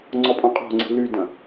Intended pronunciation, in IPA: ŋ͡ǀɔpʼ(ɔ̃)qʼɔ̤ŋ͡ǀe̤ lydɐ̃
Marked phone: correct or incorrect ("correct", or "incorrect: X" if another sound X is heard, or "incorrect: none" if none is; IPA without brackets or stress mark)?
correct